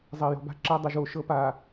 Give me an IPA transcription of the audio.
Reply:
zˤ ɐː˨ j ɔ̤˨ b a̤˦ ǁ a˦ dˤ ɐ˨ ʒ oː˨ ʃ ɤ˦ p aː˨

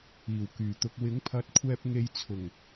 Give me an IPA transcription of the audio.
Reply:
iː˨˩ w k yː˨˩ t̪ ʊ˧ k̚ w ɪ˨˥ ŋ pʰ ɐ˨˥ t̚ kʷʰ ɛː˧ p̚ ŋ e˧ j t͡sʰ ʊ˨˩ ŋ

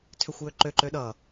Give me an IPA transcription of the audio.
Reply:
tʰ ø xʷ j ø ǃ ø ǃ ø ɗ ʌ

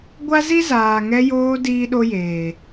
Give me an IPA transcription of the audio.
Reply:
ɡʷ a˦ z i˦ z aː˨ ŋ ɛ˧ j oː˧ d iː˦ ɗ o˦ j eː˨

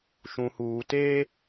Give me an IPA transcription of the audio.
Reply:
ʃ ũ˨ h uː˨ t e˦

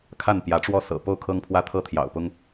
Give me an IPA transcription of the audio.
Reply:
kʰ a˥˨ n p j ä˨˦ ʈ͡ʂ w ɔ˥˨ s ɤ̰˨˩ p o˥˨ ʊ̯ kʰ ɤ˦ ŋ pʰ w ä˦ t̪ʰ ɤ˥˨ t̪ʰ j ɑ̰˨˩ ʊ̯ p ʊ˦ ŋ

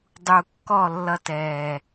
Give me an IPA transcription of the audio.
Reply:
dˤ u˨ kː ɔ˦˨ lː ʌ˧ t ɛː˨

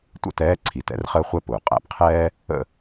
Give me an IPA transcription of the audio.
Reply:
tʷ ə̰˥˨ t ɛː˧˥ ǀʰ i˩ t ɛ̰˧˥ r χ əː˥ χʷ ɛ˥ p ʊː˩ qʼ æ̰˧ p qʰ ɛː˥ | ə̰˥˨

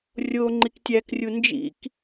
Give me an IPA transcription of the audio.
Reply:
rʲ o ŋ͡ǃ i k tʲ æ k rʲ u n d͡ʒ ḭ k

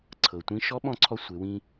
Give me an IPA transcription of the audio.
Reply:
ǀʰ ɤ˩ tʷ ĩ˧˥ ʃ ɔ˧˥ ɓ ɔ̃˧ ǀʰ ɔ˧ sʷ e˩˧ w ĩ˧

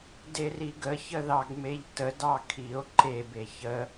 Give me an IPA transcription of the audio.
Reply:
d e r i ɡ ə ç ə ð ɑ ɡ m e ʎ t ə d ɑ kʰ i o̯ ǃ e b e ç ə

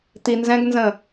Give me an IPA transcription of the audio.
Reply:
t̪ i n z ɛ̃ ɡ n z ə̃

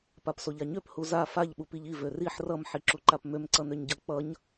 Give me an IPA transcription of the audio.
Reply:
p a p s o ʎ a ɲ ø p h u z a f a ʎ ɓ u p i ʎ i v ø r i ħ r ʌ m ħ i ǁ u ǃ a p m ø m ǀ ʌ n ø ɲ ɟ ʌ k͡p ʌ ɲ

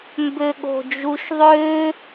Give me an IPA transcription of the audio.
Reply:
m b ø ɠ o̤ d͡ʒ u ʃ ðˤ ø

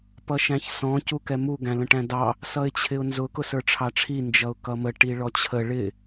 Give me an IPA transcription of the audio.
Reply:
p ʌ ʃ æ̃ ç s ɔ̃ c u k ɛ m u ɡ æ̃ l ə̃ ʈ æ̃ d ɑ | s ʌ ɪ̯ t͡ɕʰ ɪ ʊ̯ n z ʊ k ʊ s ə˞ ʈ͡ʂʰ ɑ ʈ͡ʂʰ i n d͡ʒ ʌ ʊ̯ k ʌ m ə ʈ i ɭ ɔ t͡ɕʰ ə ɭ ɪ

